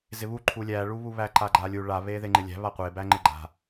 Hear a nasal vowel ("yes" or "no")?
no